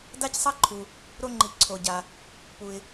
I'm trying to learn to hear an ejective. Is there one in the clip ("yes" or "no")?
no